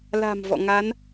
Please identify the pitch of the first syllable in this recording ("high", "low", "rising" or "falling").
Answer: low